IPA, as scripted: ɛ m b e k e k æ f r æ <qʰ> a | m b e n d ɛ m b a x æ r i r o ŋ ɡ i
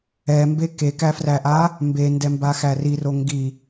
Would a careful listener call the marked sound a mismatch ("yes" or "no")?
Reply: yes